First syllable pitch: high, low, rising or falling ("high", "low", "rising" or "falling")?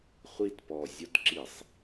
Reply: falling